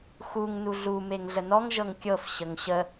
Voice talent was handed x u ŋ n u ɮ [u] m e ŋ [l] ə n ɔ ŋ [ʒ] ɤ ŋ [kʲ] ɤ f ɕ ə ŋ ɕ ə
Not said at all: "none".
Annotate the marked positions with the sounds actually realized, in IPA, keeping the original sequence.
u, ɮ, ʒ, kʲ

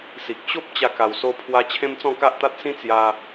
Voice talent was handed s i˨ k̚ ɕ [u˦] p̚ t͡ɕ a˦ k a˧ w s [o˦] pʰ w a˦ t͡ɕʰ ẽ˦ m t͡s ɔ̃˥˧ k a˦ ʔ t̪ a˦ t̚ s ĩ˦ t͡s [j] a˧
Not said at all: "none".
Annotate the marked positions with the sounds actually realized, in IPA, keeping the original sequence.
o˦, o˦, j

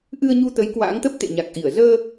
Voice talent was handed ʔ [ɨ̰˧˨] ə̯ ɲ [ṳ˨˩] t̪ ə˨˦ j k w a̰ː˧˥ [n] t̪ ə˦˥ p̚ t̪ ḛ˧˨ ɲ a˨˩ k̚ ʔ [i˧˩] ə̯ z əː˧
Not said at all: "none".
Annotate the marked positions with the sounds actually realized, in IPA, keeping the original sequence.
ɨ˧, u˧, ŋ, i˧˩

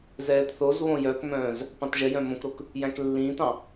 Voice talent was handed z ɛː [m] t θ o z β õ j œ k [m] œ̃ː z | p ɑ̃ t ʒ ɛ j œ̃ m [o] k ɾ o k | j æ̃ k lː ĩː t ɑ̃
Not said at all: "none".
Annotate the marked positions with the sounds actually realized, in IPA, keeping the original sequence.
none, m, õ

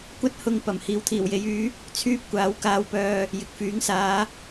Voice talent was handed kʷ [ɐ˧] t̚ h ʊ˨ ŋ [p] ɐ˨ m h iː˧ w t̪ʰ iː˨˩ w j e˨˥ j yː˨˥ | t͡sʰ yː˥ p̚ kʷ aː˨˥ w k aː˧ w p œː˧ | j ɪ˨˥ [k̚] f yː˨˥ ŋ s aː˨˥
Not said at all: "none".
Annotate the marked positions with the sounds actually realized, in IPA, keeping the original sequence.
ɐ˧, p, k̚

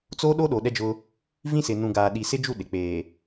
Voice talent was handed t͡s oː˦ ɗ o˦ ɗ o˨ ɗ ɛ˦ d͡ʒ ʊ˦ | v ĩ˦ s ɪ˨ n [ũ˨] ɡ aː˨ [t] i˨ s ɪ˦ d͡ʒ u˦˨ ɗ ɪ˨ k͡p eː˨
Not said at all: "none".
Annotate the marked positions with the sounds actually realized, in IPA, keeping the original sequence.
ũ˨, ɗ

